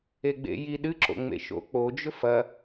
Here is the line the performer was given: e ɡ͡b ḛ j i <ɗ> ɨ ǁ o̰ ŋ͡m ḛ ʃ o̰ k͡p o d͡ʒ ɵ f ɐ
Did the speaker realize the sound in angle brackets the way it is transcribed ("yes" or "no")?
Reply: yes